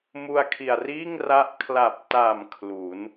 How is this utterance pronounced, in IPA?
mu˧a̯kʰi˨˩a̯riː˥˩ŋra˦˥ʔ kʰla˨˩p̚ta˨˩m kʰlu˩˦n

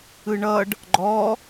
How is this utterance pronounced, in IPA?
ɯɳʌɖ | ɡ͡ǃɔ

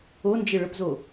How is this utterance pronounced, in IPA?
ond͡ʒɘ ɭəpzo

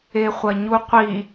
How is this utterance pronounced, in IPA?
eχʷɐɲuqʷi

